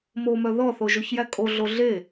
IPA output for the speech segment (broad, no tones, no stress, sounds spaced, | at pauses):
m o m œ ð ɔ θ o ʒ o ç j æ kʼ o ɮ o ɮ e